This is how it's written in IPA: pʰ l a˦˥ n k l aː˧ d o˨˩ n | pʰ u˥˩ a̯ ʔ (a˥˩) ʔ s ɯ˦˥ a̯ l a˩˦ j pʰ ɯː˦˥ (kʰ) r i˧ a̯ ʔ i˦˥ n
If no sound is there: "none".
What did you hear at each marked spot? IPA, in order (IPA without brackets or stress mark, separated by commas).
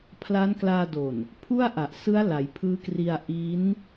a˨˩, k